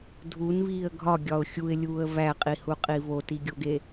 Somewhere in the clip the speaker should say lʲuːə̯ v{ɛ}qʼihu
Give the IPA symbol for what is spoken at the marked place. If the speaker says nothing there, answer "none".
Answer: æ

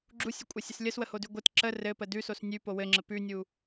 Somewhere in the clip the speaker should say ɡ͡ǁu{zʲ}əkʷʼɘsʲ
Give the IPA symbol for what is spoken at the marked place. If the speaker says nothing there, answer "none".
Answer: sʲ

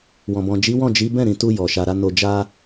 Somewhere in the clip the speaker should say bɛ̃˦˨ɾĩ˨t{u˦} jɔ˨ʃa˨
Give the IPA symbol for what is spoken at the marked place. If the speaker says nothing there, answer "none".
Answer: u˧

